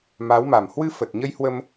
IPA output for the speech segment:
ma˨˦wma˨˩m hwɨ˧fə˨˩t̚ɲə˧jhwə˧m

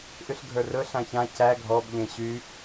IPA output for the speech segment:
ʔyɬɡʱə˞rɵ ɬãçã cæ ɡʱɔb ʎẽɕy

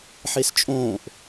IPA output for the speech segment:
ħest͡ʃʼõːʔ

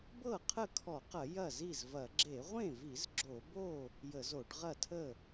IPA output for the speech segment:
bɤ˥˩ qʰə˥˩kʰɔ˧˩˧qɐ˧˩˧ jɐ˥˩zi˥˩zvɐ˧˩˧ ɡ͡ǁe˧˩˧ʁʷẽ˥˩vi˧˩˧z ɡ͡ǁo˧˩˧bo˥˩ | jə˧˩˧zo˧˩˧ɖʁɐ˥˩tʰə˥˩

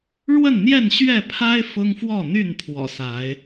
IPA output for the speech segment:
ɻwə˥˨nn̪jɛ˥˨nɕɥɛ˥˨ pʰa˦ɪ̯ fʊ˦ŋfwɔ˥˨n̪y˥˨n pʰwɔ̰˨˩sa˨˦ɪ̯

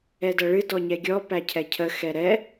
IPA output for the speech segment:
ɛdɐɭɨ dɔɲɛɡʲɔ pæcʰɛcʰə xɛɾɛ

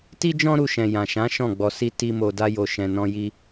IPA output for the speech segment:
ti˦d͡ʒɔ̃˦ɾu˧ʃɛ̃˨ jã˨ʃã˨˦ ʃɔ̃˦˨ɡ͡bɔ˧si˦ ti˦mo˧ da˧jo˨ʃɛ̃˨nɔ̃˧ ji˦

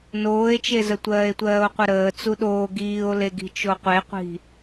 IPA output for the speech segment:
noːe̯t͡ʃezə tʷɜːe̯tʷɜːo̯qʷəɾəː t͡suɗoː ɡiːo̯leɡi̤ t͡ʃoqʷeqʷi̤

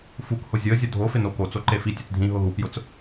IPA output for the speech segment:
fukhʊ zʲʊə̯zʲʊ dʱofɪno kot͡so ǃefi tʲet͡sdʱĩ ɦʊɦupjʊt͡s

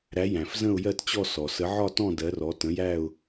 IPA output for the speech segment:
ɾæ˨˥jæ̃˩fzə̃˥˧ʊ̯ jɜ˥˧tt͡ɕɔ˥˧ sɔ˩ sə˨˥ʕɒ˥˧tɔ̃˥˧ dɜ˨˥rɔ˨˥ tə̃˨˥jæ˥˧ʊ̯

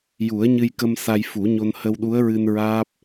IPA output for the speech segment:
ju˨˩˦ə̯ɲɨ˧jkə˧m sa˧jfu˨˩˦ɲo˧n hə˧wɗu˧˥ə̯ɹɨ˧n ɹaː˦˥p̚

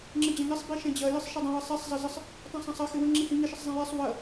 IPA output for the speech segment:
ŋ͡ǁɪd͡ʑɐ̃ŋɪsˤ biʃɛ̃d͡ʑɐ jɪsˤʃɪdˤə̃ wəsˤɛsˤ zˤɐzəsˤ | tˤə̃sˤɐ̃sˤɐ xɪwə̃ ŋ͡ǁihĩ ŋɪ ʃɪsˤzˤɛ̃jɛsˤ wɐ

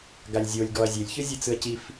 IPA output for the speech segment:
ɡalʲzʲolʲ ɡɔɐ̯zʲelʲçɯ zʲɯt͡sɯɐ̯cif

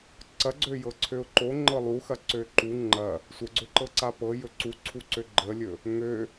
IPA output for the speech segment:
ǀɐɡ͡ǀøjɤ ǀʰøʊ̯ǃoŋ͡ǃɤ lˠuxɐ ǀøǃu ŋ͡ǃɐ | sʷəɡ͡ǀøǃɤǀa pɤ jɵǀuǀʰuǀø ɡ͡ǃəlʲɵ | ŋø

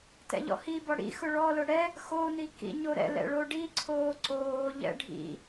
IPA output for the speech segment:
tɛ̰ʎɔ̰hibɔ ɽḭ xʊɭɔlʊ ɽɛ | xoni kḭɲoɾɛ̰lɛ̰ ɭoɖiǀʰoː ǀoːʎɛ̰ ɖʱḭ

